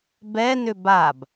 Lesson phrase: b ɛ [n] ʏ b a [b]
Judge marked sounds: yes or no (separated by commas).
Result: yes, yes